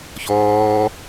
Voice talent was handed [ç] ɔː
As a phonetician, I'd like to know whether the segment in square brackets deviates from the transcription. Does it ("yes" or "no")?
no